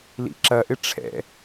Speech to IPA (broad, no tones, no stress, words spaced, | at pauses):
lḭǁɐʔɪ ʈ͡ʂʰɛ̰